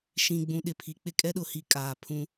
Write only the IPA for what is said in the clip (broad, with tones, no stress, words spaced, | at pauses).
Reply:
ʃĩ˨ɡ͡bũ˨ɗɪ˨ pʰi˨k͡pɪ˦kʼɛ˦ɗʊ˨ hi˦kʼaː˨ pʰũ˦